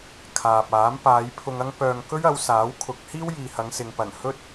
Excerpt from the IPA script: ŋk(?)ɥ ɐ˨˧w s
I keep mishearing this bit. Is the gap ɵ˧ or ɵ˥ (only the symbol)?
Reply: ɵ˥